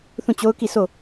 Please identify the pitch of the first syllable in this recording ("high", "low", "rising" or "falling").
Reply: falling